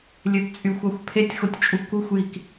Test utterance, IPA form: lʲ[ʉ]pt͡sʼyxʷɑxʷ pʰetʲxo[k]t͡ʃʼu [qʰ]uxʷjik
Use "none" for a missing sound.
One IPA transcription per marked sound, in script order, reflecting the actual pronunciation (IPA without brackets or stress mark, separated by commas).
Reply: ø, tʲ, k